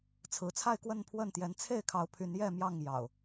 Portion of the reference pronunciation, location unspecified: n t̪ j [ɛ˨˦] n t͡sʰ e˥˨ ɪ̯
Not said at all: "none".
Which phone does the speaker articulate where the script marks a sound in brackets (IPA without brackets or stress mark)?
ɛ˨˦